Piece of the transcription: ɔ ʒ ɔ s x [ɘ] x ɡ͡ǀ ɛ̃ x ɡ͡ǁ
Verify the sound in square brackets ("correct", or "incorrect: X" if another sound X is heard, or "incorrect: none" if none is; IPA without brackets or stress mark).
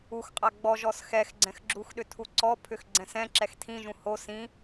incorrect: ɛ